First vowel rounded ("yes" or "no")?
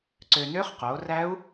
yes